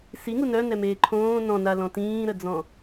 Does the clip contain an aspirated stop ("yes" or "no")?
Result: yes